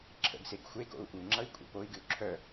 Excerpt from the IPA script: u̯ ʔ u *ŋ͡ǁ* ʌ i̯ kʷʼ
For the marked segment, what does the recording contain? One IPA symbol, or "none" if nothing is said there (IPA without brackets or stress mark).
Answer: ŋ͡ǁ